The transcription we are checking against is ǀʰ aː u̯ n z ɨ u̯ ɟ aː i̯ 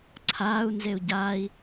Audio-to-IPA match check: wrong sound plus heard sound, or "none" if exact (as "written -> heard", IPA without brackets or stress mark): ɨ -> e